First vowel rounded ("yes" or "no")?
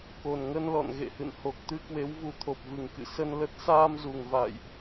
yes